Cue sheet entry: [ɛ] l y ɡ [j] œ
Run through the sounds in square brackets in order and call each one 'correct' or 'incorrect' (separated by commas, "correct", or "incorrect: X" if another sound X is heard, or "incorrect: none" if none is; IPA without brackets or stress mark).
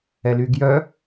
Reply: correct, correct